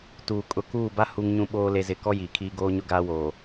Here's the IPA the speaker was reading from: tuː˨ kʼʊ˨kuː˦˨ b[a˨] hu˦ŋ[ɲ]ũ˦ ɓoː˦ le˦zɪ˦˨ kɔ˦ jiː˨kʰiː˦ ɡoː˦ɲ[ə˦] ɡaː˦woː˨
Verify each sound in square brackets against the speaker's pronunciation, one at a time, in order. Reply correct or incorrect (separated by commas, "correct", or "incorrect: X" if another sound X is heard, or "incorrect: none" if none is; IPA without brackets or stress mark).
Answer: incorrect: a˦, correct, incorrect: ʊ˦